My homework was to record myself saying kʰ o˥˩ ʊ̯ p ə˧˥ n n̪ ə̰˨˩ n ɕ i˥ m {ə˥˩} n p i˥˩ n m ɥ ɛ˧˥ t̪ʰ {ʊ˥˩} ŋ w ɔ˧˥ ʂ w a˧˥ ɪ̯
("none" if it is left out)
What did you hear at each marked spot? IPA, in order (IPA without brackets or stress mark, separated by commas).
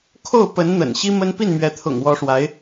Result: ə˥, ʊ̰˨˩